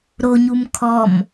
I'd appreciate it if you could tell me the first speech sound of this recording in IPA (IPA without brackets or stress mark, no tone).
ɾ